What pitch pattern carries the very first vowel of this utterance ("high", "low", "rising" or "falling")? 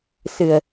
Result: low